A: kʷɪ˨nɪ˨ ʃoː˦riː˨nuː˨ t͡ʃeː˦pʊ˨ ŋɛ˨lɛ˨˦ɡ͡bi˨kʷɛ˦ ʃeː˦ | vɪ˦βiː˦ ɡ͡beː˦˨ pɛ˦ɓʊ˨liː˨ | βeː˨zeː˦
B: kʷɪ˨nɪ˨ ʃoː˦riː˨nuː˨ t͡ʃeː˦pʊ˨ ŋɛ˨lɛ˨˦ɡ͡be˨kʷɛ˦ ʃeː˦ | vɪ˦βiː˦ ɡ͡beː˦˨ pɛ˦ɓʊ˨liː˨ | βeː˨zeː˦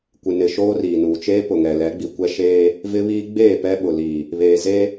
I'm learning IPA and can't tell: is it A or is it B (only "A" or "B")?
A